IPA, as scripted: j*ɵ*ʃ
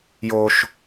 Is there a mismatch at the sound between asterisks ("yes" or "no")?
yes